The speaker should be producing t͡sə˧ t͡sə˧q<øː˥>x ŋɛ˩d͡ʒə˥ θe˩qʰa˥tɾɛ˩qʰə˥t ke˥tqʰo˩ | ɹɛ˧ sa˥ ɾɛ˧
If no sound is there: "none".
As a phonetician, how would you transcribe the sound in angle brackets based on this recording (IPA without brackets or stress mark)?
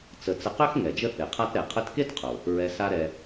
ø˥